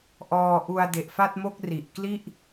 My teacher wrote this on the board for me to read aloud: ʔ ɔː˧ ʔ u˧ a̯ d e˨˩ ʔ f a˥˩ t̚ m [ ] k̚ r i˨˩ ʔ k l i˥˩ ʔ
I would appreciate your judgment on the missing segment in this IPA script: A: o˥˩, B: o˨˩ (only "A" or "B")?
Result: A